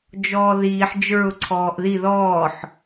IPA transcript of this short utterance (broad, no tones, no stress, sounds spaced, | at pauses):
d͡ʒ ɔː ð iː ħ d͡ʒ ə˞ ʊ̯ ǀʰ ɔː ʔ ð i ð ɔː ħ